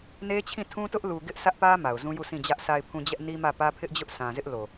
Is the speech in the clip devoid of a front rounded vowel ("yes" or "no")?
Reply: yes